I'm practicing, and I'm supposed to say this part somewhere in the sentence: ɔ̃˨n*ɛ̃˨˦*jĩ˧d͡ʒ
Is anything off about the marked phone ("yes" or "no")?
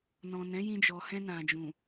no